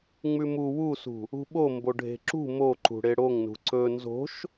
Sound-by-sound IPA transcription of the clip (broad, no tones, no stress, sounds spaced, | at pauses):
ŋ͡m ʉ m u w u s ṳ | ṳ ɓ o m b o ɖʱ e̤ ǁ ṳ m o ǃ ṳ ɽ e ɽ o ŋ n ṳ ǀ ɵ n z o̤ ʃ